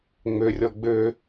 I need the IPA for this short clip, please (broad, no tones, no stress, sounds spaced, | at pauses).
ŋ͡m ø rʲ ɔ ɡ͡b ø